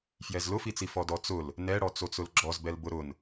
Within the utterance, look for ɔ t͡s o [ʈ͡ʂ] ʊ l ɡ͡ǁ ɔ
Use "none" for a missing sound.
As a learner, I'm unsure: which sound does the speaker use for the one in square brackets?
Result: t͡s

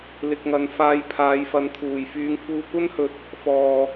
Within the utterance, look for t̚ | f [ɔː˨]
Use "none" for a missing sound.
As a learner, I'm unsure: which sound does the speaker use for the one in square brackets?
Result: ɔː˨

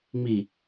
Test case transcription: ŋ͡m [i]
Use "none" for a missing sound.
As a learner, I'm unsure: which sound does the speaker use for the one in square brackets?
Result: i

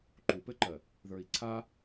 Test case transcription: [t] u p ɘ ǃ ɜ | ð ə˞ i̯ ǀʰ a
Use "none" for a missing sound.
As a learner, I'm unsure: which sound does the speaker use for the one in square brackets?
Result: ǃ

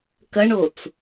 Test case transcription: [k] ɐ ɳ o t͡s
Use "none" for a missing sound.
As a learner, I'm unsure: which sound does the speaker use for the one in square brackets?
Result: k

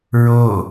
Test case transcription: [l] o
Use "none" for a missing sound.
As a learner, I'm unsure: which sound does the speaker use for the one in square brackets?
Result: ɹ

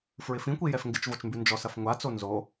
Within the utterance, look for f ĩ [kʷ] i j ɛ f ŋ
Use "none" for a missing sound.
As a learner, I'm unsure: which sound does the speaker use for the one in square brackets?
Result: kʷ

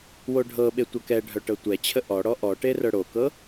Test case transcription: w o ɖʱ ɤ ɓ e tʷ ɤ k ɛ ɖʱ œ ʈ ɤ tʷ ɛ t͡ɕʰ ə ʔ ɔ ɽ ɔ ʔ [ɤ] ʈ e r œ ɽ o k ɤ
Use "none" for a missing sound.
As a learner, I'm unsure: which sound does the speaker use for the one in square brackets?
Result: ɔ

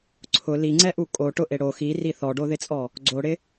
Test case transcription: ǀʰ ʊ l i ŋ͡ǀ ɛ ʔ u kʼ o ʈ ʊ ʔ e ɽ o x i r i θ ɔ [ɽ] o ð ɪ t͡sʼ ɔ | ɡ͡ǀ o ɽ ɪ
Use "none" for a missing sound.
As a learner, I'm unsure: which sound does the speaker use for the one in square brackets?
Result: ɖ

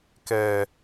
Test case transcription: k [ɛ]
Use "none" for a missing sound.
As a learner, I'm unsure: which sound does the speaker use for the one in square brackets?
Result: ɛ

